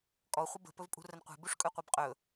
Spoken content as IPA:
kʼɔ χʷəbə̤ pɵvpʼṳrənqʷe̤ buʂkʼɵqʷibqʼɵ

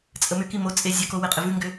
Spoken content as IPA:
t͡sʼəmʏki mot͡sʼe zʲəko weqʼɪvʉŋɡʏ

